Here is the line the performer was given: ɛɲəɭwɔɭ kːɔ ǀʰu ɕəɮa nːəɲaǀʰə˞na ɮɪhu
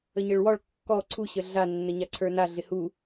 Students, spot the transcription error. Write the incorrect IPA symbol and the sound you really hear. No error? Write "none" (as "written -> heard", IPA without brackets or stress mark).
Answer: ɛ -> ə